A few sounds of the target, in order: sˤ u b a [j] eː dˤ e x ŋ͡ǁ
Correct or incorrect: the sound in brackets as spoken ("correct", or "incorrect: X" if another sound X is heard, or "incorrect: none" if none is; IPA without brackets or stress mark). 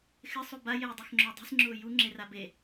correct